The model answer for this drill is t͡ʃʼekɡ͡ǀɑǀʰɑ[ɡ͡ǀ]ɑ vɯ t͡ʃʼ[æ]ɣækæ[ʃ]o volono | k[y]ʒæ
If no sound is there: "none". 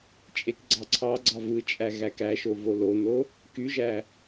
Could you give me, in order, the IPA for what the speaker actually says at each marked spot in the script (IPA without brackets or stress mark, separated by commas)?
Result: ɡ͡ǀ, æ, ʃ, y